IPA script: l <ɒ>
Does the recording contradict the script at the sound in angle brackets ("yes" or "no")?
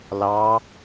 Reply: yes